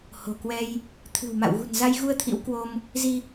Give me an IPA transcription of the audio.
ho̤˨˩kwɛ˧j | t̪ʰɨ̤˨˩wma̰˧˨wɣṳ˨˩n za˧jɣu˧ə̯ t̪ʰḭ˧˥wkwo˧m | zi˧

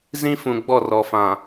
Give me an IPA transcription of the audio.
zĩ˦fũ˨ ɡ͡bɔ˦˨rɔ˨ fã˨

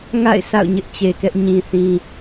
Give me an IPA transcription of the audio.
ŋa̰˦˨ɪ̯ sa̰˦˨ʊ̯ɲɪ˦ʔt͡ɕe˨kɛ˦ʔ ɲĩ˨θĩ˨

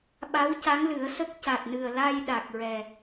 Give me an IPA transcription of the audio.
ɓa˧˥wca˧˥ŋlɨ˨˩˦ə̯sə˦˥k̚ ca˨˩t̚nɨ˨˩ə̯ la˧j ɗa˨˩k̚ɹɛ˨˩

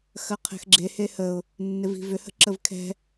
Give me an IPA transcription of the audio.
xɐqʰɛ̤xɡ͡ǁe hehəʊ̯ | nːɪvi̤vʏ hə̤ǁəvkʰɛ̤

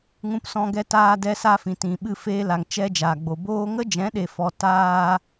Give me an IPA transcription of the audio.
ŋũ˧psɔ̃˧ɡɛ˧ taː˧dɛ˧sa˧fĩ˨ tĩ˨ɓɨ˧ feː˧ la˨ŋt͡ʃɛ˧ d͡ʒaː˨ɡ͡bo˨boː˦ ŋə˦d͡ʒɛ̃˨˦ɗe˨fɔ˨ taː˦

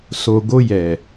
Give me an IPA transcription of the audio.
so˨ ɡo˧jɛ˨

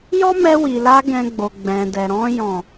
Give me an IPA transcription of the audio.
jɔ˦mɛ˧wi˨la˧ ɡɛ̃˧ɡ͡bo˨ ɡ͡bɛ̃˨dɛ˨ ɾɔ̃˧jɔ̃˨

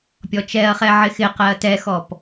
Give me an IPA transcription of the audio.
pʲɔt͡ʃɛɐ̯χɛ ʕɪxɪqɛɐ̯ tɛxɔp

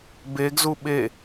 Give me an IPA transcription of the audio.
beɡzu ɓe

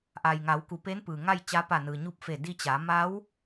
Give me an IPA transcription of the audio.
ʔa˩jŋa˩˧wku˩˧ pe˧˥npɯː˩ ŋa˥˨jt͡ɕa˧˥ pa˧˩nɯː˩ ɲu˧˥p̚fe˧˩ di˧t͡ɕa˩˧ ma˧˥w

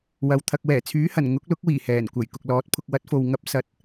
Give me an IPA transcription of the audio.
wɐ˨w t̪ʰɐ˨k̚wɛː˨˩t͡sʰyː˨˥hɐ˨˩n ŋʊ˨˥k̚lʊ˨˥k̚wiː˨˩ hɛː˨˩nkʷɐ˨˩j kʊ˨k̚lɔː˨˥t̚pʰʊ˧k̚ wɐ˨˥t̚fo˨w ŋɐ˧p̚sɐ˨˥t̚

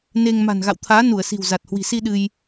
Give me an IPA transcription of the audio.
ne˧ŋ ma̤˨˩nɣa̰˧˨wt̪ʰaː˨˦ nu˧˩ə̯si̤˨˩w za˨˩t̚hwi̤˨˩si˧ ɗɨ˧j

